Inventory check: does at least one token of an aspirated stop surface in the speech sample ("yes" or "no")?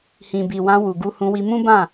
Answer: no